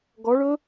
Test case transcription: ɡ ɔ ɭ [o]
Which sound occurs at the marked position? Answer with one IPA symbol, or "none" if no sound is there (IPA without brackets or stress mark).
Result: ɵ